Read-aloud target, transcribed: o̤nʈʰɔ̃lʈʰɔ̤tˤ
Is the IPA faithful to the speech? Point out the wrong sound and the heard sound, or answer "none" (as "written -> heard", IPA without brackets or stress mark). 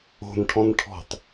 l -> n